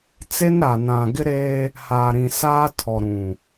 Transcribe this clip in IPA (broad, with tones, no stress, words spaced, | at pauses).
t͡se˦nɾa˨nã˨ ɡɪ˦ɾeː˦ | haː˨ɾĩ˨ saː˦ tʰɔ˨ɾũ˨